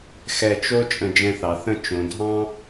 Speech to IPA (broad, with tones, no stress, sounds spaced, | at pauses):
x ɛ˧˩ t͡ʃ o˥ t͡ʃʼ ə̃˧˩ d͡ʒ ɛ̃˧ θ ɑ˩˧ θ ə̃˥˧ t͡ʃ õ˩˧ dʱ ɑ̃˥